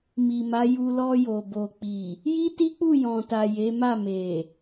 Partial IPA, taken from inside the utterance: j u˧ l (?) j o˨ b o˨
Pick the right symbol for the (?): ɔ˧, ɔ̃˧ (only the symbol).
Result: ɔ˧